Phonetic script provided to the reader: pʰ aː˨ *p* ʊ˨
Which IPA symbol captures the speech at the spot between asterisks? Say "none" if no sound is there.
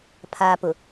p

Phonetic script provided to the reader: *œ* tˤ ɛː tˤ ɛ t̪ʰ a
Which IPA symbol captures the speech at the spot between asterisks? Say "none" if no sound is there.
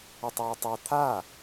ə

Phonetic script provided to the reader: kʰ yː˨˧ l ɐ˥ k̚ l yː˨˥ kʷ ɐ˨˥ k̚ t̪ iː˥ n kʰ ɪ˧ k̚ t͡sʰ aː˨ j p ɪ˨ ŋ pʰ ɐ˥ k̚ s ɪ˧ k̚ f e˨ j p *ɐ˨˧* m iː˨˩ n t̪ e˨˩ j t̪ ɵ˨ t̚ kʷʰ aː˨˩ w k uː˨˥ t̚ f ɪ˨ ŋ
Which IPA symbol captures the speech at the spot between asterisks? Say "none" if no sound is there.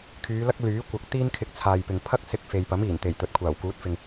ɐ˨˥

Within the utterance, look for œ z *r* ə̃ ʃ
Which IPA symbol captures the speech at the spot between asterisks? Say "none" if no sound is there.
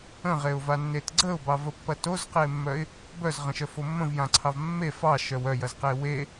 ʁ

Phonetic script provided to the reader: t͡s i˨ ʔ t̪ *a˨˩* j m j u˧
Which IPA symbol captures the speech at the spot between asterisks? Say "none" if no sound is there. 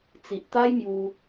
a˦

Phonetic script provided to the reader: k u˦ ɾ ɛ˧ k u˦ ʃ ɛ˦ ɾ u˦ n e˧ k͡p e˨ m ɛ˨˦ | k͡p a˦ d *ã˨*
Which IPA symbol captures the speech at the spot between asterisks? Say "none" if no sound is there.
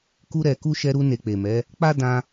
ã˦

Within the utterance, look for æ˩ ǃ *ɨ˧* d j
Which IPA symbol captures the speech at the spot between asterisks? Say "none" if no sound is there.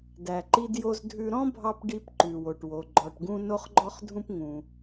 i˧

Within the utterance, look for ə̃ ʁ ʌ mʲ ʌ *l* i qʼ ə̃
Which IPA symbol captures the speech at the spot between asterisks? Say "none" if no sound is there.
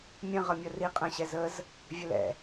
r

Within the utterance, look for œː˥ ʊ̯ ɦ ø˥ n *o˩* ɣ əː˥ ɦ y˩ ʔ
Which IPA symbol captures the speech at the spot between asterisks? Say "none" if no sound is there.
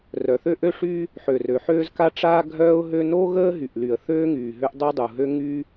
o˥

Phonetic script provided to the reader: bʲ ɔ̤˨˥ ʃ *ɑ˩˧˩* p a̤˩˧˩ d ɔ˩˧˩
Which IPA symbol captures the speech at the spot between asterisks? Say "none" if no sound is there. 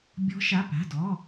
a˩˧˩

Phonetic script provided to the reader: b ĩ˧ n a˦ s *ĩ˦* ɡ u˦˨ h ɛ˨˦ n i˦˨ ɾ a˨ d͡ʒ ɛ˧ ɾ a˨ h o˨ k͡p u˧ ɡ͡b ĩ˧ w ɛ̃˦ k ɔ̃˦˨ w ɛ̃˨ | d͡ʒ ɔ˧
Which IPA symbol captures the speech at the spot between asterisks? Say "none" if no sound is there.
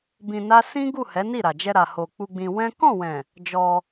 ĩ˦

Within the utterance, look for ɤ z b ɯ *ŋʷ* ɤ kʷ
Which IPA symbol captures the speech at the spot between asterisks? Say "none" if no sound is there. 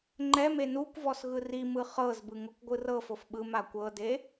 ŋ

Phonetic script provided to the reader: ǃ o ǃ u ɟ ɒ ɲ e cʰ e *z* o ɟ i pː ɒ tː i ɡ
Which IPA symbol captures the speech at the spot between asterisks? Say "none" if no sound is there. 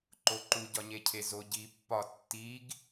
z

